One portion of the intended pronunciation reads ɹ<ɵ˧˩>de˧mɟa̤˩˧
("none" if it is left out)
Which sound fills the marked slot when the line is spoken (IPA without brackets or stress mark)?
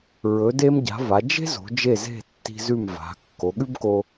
ɵ˩˧